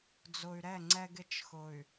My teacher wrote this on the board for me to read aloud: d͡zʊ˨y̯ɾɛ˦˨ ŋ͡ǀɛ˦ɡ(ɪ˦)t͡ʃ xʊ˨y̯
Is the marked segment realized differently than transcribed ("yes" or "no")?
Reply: no